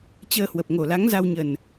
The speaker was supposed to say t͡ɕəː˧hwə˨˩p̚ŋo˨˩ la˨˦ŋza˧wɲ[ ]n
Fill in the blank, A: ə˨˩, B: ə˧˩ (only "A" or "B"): A